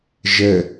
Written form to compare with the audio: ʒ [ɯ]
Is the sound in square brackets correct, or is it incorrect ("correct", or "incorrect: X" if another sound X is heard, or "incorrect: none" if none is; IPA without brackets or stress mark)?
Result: incorrect: ə